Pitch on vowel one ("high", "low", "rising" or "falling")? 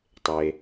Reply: low